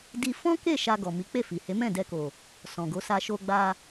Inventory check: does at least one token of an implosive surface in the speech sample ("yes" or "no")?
no